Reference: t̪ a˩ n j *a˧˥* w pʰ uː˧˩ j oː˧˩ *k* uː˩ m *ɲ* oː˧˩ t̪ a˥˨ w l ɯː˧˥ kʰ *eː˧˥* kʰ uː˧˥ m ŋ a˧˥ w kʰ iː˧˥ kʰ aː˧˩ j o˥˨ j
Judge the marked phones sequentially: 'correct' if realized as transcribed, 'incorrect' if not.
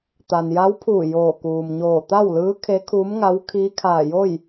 correct, correct, correct, incorrect: e˧˥

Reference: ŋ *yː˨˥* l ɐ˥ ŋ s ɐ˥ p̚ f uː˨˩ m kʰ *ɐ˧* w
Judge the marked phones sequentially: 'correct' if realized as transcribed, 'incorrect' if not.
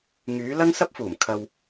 correct, correct

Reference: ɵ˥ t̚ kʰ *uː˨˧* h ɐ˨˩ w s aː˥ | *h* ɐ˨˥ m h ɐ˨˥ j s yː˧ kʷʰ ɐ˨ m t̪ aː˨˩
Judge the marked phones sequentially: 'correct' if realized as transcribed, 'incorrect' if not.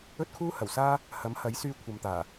incorrect: uː˥, correct

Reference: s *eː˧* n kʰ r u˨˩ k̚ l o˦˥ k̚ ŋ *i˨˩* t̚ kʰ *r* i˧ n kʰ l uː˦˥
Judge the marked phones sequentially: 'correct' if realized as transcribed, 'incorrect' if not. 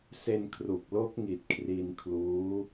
incorrect: e˧, correct, correct

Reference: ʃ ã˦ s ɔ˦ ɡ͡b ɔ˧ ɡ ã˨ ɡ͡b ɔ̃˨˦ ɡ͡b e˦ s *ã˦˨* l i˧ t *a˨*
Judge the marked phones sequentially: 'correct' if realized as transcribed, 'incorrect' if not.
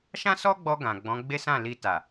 correct, correct

